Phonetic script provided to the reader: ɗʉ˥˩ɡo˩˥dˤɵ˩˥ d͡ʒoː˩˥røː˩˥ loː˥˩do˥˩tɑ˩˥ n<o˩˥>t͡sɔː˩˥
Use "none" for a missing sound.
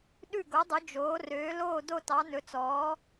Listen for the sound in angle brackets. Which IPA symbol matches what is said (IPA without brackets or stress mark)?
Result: ɵ˩˥